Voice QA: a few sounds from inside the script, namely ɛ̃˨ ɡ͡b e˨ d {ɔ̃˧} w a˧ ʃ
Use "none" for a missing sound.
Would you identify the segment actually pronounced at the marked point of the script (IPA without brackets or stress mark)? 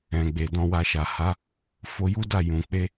ɔ̃˧